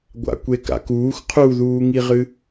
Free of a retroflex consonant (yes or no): yes